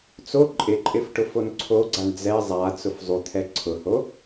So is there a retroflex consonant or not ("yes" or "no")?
yes